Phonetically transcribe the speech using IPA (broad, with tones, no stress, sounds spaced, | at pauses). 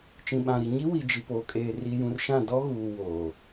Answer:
t͡ʃ ĩ˨ ɓ ã˨ ɾ i˨ ɲ i˦ w i˨ d͡ʒ i˨ p oː˨ kʼ eː˨ r i˨ j ũ˨ r ʃ ã˦˨ d ɔ˦ ɣ uː˨ w oː˨